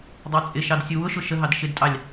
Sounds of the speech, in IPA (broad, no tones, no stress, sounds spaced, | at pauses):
dˤ ɑ t͡sʼ ɪ ʃ ɑ d sʲ u w ʊ ʃ ʊ ʃ ə ɦ ɑ d ʃ ɪ d tʼ ɑ lʲ